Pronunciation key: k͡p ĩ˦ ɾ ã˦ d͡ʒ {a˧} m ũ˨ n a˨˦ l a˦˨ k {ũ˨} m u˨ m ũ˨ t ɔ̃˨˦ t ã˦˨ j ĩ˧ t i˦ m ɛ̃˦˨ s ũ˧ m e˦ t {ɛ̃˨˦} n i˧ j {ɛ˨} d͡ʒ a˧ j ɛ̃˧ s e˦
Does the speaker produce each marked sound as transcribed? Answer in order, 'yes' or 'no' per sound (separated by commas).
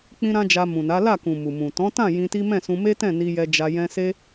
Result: yes, yes, no, no